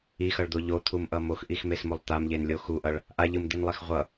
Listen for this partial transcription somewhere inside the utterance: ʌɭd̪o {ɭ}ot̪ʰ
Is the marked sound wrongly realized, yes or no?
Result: yes